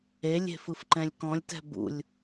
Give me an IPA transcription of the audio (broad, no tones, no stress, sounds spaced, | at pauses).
e lʲ e̤ f ɯ f ǃ ɛ̃ lʲ k ɔ̃ lʲ t ɛ̤ b ṵ lʲ